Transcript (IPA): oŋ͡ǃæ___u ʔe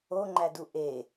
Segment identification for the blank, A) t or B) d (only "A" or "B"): B